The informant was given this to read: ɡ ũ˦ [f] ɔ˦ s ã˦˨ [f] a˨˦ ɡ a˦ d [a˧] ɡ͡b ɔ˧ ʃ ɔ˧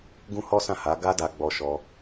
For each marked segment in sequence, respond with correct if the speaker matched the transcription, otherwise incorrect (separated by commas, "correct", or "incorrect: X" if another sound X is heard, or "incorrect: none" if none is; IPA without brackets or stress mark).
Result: incorrect: h, incorrect: h, correct